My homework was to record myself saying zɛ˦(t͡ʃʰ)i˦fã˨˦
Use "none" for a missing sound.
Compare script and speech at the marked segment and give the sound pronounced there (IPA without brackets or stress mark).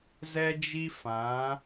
d͡ʒ